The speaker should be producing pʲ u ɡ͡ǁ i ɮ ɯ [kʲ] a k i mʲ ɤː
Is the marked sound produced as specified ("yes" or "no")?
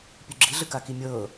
no